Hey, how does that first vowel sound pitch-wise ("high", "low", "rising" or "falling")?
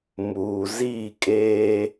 low